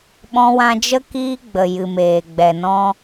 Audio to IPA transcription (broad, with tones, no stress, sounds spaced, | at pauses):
ɓ ɔ̃˧ w ã˧ d͡ʒ ə˦ k iː˦ ɡ͡b ə˨ j ɨ˨ m eː˨ ɡ͡b ɛ˨ n ɔ̃˦